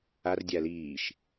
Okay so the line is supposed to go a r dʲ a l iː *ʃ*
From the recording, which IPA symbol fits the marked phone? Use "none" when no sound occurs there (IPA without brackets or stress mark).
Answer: ʃ